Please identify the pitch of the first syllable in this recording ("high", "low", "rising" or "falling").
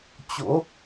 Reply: rising